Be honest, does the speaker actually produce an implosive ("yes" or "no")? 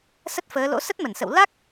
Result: no